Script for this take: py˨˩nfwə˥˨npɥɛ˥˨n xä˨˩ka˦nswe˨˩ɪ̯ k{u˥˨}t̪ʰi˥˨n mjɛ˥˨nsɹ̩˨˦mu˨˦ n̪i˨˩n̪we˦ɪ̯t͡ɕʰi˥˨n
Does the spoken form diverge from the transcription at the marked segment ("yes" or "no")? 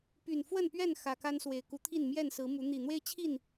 yes